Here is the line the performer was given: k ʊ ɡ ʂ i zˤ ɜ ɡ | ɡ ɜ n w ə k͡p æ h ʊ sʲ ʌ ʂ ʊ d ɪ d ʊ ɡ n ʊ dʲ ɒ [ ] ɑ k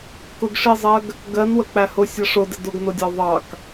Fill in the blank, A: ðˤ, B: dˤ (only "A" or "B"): A